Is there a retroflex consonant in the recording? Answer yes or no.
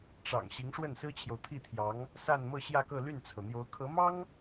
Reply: yes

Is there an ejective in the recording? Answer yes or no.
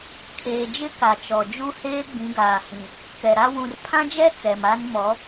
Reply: no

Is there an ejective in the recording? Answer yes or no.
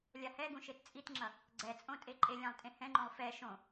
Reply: yes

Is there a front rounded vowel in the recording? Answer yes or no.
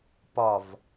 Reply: no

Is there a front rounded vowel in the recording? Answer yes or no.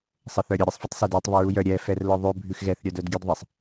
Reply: yes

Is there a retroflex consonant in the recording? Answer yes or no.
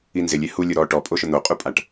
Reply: yes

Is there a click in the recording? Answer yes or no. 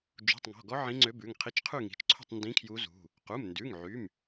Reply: yes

